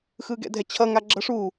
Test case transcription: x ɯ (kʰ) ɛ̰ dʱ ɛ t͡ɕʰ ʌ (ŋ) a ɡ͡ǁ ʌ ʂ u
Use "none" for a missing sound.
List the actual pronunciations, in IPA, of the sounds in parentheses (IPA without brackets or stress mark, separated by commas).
ɡ, ŋ